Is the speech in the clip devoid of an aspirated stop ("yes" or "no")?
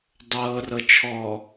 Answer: no